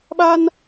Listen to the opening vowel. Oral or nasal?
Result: oral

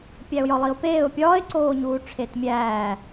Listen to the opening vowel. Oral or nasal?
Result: oral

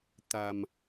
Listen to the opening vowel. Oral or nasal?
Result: oral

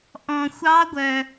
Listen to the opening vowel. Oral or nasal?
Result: nasal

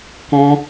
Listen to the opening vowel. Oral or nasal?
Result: nasal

